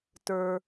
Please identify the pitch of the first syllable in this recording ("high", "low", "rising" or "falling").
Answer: low